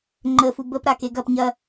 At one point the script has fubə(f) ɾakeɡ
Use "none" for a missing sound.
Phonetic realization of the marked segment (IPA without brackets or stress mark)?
p